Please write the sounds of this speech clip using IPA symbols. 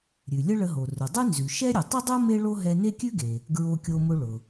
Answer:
ɾʲ ʉ˩ lʲ ə˥ ɭ ə˧ ɦ o˩ r ʊ˩ dˤ ʉ˥ n z ʉ˩ ʃ ɛ˥ ɾʲ ə˩ tˤ ʊ˥ dˤ o˥ m e˥ ɭ o˥ ɦ ɛ˧ n e˥ kʲ ʉ˥ ɡ e˩ | ɡ ɹ o˧ kʲ o˧ m ʊ˧ ɭ ʊ˩

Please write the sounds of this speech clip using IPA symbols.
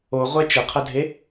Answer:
o ʁʷ ɛ t͡ʃ ə qʰ ə dʱ e

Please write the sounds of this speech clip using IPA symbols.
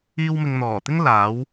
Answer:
iː˧ w m ɪ˨ ŋ n̪ ɔː˨˩ t̪ ɪ˥ ŋ l aː˨˥ w

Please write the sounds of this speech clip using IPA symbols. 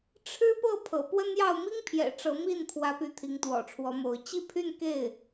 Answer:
ʈ͡ʂʰ ɻ̩˥ p ɤ˥˩ pʰ ɤ̰˨˩ p w ə˥ n j ɑ˥˩ ʊ̯ m i˥ ŋ pʰ j ɛ̰˨˩ ʈ͡ʂ ɤ˧˥ m i˥˩ n pʰ w ä˧˥ p y˧˥ t̪ʰ i˧˥ ŋ t̪ w ɔ̰˨˩ ʈ͡ʂʰ w ɔ˧˥ m o˧˥ ʊ̯ t͡ɕ i˥˧ pʰ y˥˧ n k e˥˩ ɪ̯

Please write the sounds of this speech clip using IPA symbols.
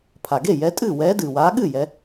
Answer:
pʰ a˩ ɡ e˥˩ j ɛ˨˦ tʼ ɨː˥˩ w ɛː˨˦ d ɨː˩ w aː˨˦ ɠ ɨ˥˩ j ɛ˨˦

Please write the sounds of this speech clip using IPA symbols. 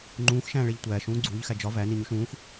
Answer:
ŋ͡ǃ ũː x ʃ æ̃ː ɭ e ʎ tʷ æː ʃ ũː ɡ͡ǀ uː ʎ x æ d͡ʒ ɒ v æ n i ɲ u ʃ ũː x

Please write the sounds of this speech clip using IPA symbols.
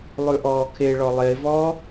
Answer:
lˠ ʉ ʔ ɔː kʰ e ɭ ɔ lˠ e v ɔː

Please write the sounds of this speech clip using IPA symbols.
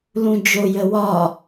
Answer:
l ũ d͡ʒ o j ə w ɒ

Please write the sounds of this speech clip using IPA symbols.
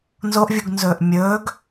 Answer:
n z o ʔ vʲ u ɡ n z ɵː ʔ mʲ ɵː ɡ

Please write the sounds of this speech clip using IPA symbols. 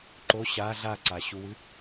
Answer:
ǃ o ɕ a ɮ a ǀ a ɕ u w ɨ

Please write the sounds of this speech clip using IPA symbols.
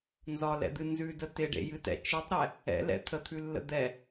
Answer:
n z ɒ l ɛ̰ d̪ ɨ n z ʉ d ə t ɪ ɖ ḛ j ɨ t ɛ̰ t͡ʃ ɨ tˤ ɾ ɛ | ɛ̰ l ɛ̰ t̪ʰ ə t̪ʰ ʉ lː ə̰ d̪ ɛ

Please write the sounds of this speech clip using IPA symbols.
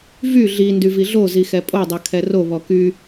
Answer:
v y ɮ i n d y v i ɮ o z i x ɛ pʼ o dˤ œ kʰ ɛ r o β ɔ k y

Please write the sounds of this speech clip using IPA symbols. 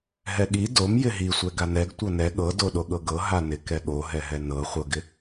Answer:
ɦ ɛ ɠ i d o m j ɪ ɦ i sʷ ɛ ɡ a n ɛ ɡ tʷ ɤ n ɛ ɠ ɤ d o ɗ o ɠ ɤ ɡ ɤ ɦ a n ɪ k ɛ ɠ o ɦ ɛ ɦ ɛ n ɤ χʷ ɤ ɡ ɪ

